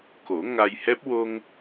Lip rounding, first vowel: rounded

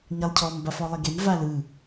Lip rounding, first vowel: unrounded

